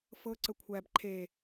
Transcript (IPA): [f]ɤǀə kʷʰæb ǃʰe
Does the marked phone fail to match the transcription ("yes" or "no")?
no